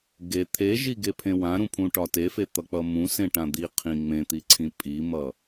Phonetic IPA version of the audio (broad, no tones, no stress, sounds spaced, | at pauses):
ɡ e t̪ʰ e ʒ i ɡ e pʰ ẽ w ã ɾ ũ pʰ ũ ʈ ɒ t e f e t̪ ʌ k͡p ʌ m ũ s ẽ ʈ ã d̪ i qʰ ĩ ŋ͡m ẽ t̪ i ǀʰ ĩ pʼ i m ʌ